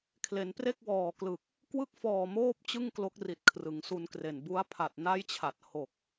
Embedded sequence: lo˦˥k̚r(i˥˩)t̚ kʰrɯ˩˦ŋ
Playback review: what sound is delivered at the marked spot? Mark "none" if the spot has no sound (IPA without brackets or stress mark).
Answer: i˨˩